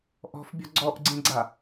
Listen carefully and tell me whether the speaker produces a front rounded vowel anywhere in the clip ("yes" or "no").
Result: no